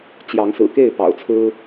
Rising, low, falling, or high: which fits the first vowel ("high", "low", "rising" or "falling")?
rising